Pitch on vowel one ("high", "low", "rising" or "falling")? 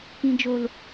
low